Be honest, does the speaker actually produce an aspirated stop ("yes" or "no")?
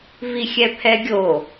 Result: yes